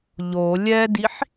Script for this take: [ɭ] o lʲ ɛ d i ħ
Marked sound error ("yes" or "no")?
yes